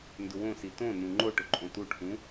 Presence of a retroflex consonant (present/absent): present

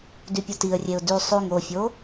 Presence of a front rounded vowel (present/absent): present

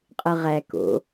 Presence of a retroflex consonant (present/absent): absent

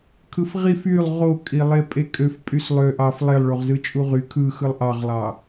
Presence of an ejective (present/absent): present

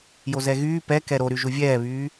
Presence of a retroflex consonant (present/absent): absent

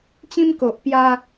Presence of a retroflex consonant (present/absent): absent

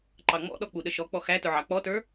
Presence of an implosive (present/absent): present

